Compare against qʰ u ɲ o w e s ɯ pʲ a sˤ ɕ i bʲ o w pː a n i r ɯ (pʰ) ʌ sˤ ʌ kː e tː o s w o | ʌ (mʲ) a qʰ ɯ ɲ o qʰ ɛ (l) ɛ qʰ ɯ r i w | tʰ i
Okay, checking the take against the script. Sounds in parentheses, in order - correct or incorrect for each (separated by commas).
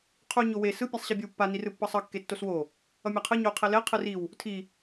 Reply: incorrect, correct, correct